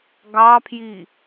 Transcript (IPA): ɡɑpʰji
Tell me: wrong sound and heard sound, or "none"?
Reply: none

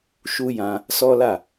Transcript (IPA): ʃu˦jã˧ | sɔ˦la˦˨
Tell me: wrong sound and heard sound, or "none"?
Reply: none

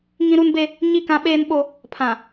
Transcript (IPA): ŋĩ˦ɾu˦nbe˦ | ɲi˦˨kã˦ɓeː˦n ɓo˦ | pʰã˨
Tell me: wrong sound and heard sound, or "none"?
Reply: none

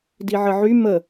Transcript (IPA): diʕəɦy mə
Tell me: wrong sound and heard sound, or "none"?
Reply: ɦ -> ʕ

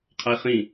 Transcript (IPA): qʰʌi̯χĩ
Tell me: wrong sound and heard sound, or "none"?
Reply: none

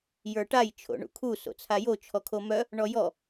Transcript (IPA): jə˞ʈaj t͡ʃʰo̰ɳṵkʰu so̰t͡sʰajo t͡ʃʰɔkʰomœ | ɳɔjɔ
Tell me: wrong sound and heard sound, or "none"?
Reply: none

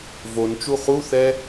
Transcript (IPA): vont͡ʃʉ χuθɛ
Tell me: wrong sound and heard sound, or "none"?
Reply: ʉ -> u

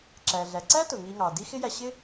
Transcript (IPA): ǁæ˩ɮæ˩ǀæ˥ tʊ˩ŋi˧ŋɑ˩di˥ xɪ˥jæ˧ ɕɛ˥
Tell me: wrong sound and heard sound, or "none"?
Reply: ɛ˥ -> ɪ˥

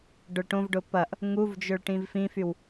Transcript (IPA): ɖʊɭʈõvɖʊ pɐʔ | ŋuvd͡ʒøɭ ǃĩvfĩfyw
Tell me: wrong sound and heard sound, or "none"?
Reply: ǃ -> ʈ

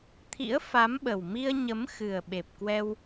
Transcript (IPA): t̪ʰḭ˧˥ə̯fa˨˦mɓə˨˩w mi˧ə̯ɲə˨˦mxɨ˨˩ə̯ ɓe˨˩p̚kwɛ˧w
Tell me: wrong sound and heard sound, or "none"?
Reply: none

